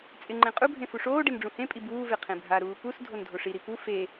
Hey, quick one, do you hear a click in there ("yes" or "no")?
yes